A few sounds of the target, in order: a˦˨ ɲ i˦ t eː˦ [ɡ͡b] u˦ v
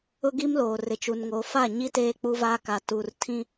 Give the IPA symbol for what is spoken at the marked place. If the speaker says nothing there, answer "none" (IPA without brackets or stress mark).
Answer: k͡p